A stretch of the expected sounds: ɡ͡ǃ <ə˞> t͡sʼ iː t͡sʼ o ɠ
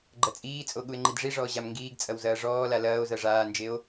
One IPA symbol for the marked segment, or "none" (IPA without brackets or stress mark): ɐ